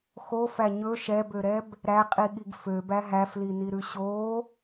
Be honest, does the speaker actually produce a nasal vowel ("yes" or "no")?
no